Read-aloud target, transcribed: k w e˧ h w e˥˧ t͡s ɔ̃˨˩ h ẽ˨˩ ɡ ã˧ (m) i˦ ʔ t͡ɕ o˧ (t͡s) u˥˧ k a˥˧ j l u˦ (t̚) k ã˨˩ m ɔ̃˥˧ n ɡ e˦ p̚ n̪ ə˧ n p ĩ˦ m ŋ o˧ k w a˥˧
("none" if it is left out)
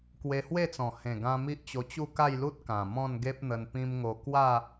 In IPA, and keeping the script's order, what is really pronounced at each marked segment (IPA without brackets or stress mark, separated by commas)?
m, t͡ɕ, t̚